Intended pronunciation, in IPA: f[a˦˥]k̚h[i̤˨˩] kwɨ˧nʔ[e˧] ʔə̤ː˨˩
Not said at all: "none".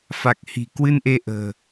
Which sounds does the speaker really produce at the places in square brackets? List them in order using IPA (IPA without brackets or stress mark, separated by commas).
a˨˩, i̤˨˩, e˧